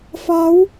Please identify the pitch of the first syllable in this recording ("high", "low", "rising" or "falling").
rising